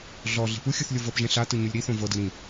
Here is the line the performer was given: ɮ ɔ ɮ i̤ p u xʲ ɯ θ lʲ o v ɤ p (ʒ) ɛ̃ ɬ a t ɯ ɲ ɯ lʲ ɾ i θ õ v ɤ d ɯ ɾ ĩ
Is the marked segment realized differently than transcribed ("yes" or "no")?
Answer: no